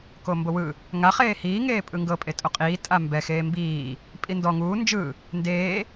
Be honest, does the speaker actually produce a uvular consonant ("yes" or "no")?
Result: yes